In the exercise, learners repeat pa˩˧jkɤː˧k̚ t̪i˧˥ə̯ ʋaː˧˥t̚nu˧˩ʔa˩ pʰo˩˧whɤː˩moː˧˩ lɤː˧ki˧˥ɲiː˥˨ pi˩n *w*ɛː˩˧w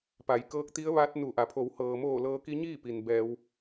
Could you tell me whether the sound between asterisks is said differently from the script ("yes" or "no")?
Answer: yes